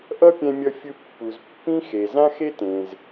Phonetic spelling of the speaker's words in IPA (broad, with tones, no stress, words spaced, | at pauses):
ʔʌ˥pʲɛ̃˧mʲʌ˧fʲɯ˧ pːu˩zpːĩ˥xe˩ zã˥xe˥tẽ˩z